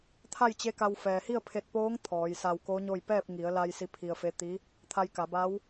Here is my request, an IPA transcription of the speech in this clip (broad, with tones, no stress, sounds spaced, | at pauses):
t̪ʰ a˥˨ j t͡ɕ e˧˥ k a˧ w f ɛː˩ h i˥˨ ə̯ pʰ e˧ t̚ p oː˧˥ ŋ t̪ʰ ɔː˩˧ j s a˧ w k o˧˥ ɲ o˥˨ j p ɛː˥˨ p̚ ŋ i˩˧ ə̯ l a˧ j s i˧˥ pʰ i˧ ə̯ f e˧˥ t̪ i˧˥ | t̪ʰ a˧ j k a˩˧ b a˧˥ w